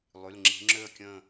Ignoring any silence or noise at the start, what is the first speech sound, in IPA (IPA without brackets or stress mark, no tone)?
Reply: lˠ